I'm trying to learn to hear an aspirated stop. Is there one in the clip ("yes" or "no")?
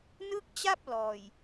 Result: no